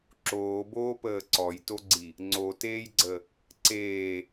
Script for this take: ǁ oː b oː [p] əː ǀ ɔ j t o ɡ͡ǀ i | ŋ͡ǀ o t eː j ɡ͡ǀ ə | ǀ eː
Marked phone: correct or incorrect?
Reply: correct